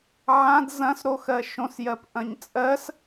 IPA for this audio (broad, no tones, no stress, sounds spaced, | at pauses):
ʕ ã d z ɐ̃ s ɾ o x ɜ ʃ õ s j ɜ p ʔ ɐ̃ ɲ t͡sʼ ɜ s